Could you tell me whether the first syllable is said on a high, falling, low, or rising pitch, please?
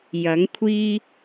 rising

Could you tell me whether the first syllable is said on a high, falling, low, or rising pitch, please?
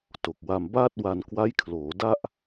low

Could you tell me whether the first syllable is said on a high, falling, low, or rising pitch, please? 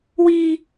high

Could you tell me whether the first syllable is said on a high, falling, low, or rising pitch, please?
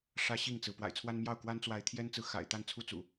high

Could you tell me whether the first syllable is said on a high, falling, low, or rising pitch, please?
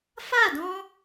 falling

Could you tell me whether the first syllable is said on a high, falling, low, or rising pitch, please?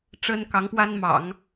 high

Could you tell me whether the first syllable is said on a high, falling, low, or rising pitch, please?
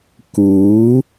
rising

